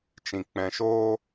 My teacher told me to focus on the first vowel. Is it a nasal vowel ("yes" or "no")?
yes